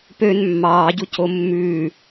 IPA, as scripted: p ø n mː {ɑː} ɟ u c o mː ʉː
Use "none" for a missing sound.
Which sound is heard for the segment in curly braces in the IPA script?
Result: ɑː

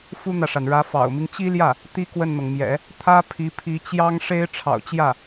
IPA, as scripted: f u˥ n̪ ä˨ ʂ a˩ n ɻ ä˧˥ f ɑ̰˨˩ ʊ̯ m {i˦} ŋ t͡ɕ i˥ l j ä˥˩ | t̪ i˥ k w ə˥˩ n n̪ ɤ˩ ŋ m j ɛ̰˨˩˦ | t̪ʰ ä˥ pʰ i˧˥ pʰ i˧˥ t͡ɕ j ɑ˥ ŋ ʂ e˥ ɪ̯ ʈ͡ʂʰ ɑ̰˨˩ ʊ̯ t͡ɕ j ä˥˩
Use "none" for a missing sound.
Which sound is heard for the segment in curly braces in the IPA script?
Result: i˦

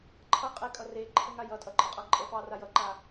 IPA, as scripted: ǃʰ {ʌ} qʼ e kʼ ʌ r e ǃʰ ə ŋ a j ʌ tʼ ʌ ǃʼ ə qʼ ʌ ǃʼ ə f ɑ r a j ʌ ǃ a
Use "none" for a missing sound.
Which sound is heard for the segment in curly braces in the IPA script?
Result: ʌ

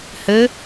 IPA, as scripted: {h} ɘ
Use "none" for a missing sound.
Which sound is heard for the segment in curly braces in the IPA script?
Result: h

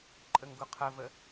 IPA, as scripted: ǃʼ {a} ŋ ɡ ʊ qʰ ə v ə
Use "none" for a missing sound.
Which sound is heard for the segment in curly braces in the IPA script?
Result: ə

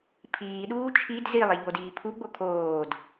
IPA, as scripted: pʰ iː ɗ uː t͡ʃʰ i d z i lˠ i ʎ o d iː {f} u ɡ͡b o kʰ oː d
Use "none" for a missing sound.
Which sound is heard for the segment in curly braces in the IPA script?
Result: pʰ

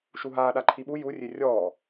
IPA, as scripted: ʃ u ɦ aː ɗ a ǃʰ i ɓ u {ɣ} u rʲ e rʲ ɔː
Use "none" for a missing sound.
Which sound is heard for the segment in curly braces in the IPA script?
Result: j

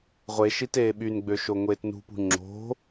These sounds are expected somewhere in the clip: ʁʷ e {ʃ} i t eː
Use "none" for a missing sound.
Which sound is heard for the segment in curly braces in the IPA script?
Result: ʃ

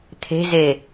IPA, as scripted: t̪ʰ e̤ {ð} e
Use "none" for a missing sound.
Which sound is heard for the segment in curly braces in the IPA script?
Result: z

